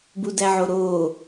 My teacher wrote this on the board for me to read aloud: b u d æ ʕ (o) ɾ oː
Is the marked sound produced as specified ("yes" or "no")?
yes